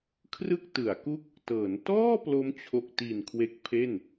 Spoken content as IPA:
kʰ r ɯ˥˩ k̚ t ɯ˩˦ a̯ k u˥˩ k̚ | t ɤː˩˦ n t ɔː˥˩ p l o˦˥ m t͡ɕʰ o˨˩ k̚ t i˨˩ n kʰ w e˦˥ k̚ pʰ e˥˩ n

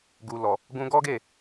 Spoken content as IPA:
ɡ u˨ l ɔ˨ | ɡ ũ˧ ɡ ɔ˦ ɡ e˦˨

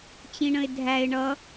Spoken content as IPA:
t͡ɕ ĩ ɳ ə̃ ɪ̯ dʱ æ ɪ̯ ɳ ʌ

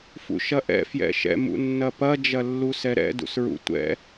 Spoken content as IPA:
f ṵ ʃ ɐ ʔ ɛ̰ f j ɛ̰ ʃ ɛ̰ m ṵ nː ɐ p ɐ d͡ʒ ɐ lː u s ɛ ɾ ɛ̰ d ṵ s ɹ ṵ tʷ ɛ̰

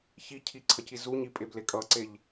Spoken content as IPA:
ç i cʰ i ǀʰ ʌ c i z u ɲ i pʼ e b l e kʼ ʌ ǀ e ʎ

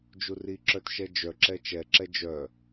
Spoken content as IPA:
d͡ʒ u r i ǁ œ t ʃ ɛ d͡ʒ œ ǁ ɛ t͡ʃ ɛ ǁ ɛ d͡ʒ œ

